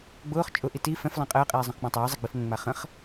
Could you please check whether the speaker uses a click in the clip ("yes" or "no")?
no